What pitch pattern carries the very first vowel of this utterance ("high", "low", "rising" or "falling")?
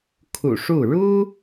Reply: low